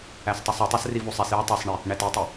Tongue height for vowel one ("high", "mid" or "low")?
low